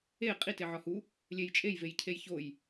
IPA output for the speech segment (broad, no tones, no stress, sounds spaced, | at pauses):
e qʼ i t e ʕ ɒ h u | lʲ e j t͡ʃʼ e j v e j cʰ e j ç o j